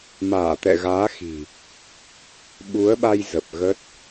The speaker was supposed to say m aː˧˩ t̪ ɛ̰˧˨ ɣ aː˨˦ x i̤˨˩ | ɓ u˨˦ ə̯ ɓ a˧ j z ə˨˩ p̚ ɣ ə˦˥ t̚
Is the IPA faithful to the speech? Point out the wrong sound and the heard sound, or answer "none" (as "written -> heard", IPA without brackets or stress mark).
none